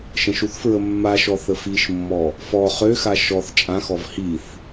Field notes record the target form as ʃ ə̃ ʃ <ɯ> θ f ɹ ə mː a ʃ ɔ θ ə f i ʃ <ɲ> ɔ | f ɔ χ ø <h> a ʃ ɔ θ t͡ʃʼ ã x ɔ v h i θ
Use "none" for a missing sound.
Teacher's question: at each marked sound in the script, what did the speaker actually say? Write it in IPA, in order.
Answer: u, mː, x

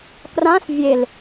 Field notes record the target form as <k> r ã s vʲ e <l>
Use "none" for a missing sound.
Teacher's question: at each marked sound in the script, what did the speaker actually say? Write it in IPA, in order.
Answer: k, l

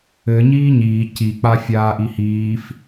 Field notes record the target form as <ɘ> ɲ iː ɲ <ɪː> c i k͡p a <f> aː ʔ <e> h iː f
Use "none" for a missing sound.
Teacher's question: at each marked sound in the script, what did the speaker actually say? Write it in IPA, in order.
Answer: ɘ, iː, fʲ, i

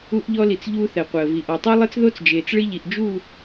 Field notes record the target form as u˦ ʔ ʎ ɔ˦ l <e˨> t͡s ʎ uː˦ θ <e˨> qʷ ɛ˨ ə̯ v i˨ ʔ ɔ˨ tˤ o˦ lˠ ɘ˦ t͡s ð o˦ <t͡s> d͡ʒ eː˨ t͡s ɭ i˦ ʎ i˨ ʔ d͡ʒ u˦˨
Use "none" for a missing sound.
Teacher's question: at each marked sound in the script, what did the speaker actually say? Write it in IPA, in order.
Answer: i˨, ɛ˨, t͡s

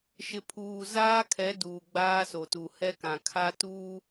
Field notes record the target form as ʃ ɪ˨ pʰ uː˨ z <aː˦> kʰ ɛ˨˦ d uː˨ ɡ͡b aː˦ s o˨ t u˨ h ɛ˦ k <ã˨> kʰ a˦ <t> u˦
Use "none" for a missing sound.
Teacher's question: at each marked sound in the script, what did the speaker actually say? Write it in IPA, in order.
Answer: aː˦, ã˨, t

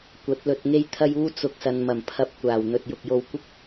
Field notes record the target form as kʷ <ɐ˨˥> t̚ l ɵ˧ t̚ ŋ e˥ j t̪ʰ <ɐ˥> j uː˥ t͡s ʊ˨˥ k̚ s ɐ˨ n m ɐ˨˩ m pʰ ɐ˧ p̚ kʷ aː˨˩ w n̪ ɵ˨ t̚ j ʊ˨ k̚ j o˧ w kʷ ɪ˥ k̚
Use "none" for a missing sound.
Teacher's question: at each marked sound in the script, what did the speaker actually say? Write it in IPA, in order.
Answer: ɐ˨˥, ɐ˥

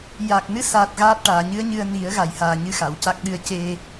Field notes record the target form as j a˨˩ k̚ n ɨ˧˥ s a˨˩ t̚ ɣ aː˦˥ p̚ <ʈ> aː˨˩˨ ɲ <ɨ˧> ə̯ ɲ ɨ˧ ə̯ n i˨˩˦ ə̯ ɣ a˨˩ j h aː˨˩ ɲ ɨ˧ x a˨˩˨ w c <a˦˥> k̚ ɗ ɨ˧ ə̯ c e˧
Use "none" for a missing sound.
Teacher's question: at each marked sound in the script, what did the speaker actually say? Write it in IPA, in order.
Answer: ʈ, ɨ˧˥, a˦˥

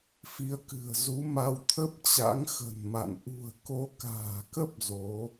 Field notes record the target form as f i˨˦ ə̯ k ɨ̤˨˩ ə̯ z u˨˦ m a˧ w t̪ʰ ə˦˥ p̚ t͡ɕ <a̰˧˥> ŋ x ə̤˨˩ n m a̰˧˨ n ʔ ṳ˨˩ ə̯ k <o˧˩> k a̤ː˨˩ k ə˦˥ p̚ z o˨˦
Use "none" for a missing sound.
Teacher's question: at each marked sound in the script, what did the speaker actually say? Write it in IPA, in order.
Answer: a̰˧˥, o˨˦

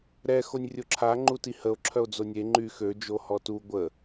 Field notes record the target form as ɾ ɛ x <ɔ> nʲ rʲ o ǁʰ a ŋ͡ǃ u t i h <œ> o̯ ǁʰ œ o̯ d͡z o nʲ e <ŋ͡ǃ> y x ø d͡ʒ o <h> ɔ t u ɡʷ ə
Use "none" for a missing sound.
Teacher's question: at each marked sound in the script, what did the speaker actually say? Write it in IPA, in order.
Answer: o, ə, ŋ͡ǃ, h

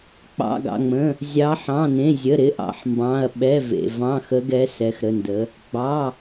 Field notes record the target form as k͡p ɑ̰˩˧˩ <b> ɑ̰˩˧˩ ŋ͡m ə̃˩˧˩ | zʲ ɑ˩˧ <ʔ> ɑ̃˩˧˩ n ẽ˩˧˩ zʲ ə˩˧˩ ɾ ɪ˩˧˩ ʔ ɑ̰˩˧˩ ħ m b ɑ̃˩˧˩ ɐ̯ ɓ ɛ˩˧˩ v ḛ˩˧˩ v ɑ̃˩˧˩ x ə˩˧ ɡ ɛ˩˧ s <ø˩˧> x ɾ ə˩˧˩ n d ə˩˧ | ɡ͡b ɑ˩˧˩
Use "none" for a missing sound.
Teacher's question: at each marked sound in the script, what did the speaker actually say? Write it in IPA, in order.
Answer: ɡ, ħ, ɛ˩˧

